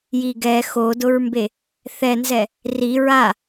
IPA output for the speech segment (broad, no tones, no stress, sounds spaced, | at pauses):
j i ɡ ɛ x o d ʊ ɹ m b e | θ ɛ n z ɛ | r i ɹ a